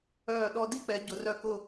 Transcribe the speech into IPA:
œː˧˩ ɗ ɔ˧ d i˥˧ k͡p ɛ˩˧ ɟ ʊ˩˧ r œ˧ k ʊ˧˩

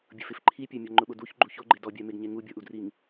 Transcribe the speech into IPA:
bʲ ʊ f ɪ f ǃʰ i pʲ a mʲ ɔ ŋ͡ǃ ʊ ɓ ʊ d u ç ɡ͡ǃ u ç o ɡ͡ǃ e d ɔ bʲ a m e ɡ ɲ e ŋ u bʲ ɔ ʔ u d r i ŋ

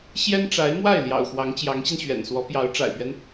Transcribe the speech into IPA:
ɕ j ɛ˥ n ʈ͡ʂ a˧˥ ɪ̯ m w a˥˩ ɪ̯ l j ɑ̰˨˩ ʊ̯ x w ɑ˧˥ ŋ t͡ɕ j ɑ˧˥ ŋ ɕ i˧ n ɕ ɥ ɛ̰˨˩ n s w ɔ˧˥ p j ɑ˧˥ ʊ̯ ʈ͡ʂ a̰˨˩ ɪ̯ p ɥ ɛ˦ n

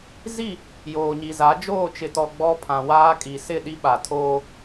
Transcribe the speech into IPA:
z i˦˨ | j oː˨ ɲ i˨ z a˨˦ d͡ʒ oː˦˨ t͡ʃ ɪ˨ t ɔ˨ ɡ͡b ɔ˦ pʰ ã˨ w aː˦ kʼ i˨ s ɪ˦˨ ɗ i˦ ɓ a˨ tʰ oː˦

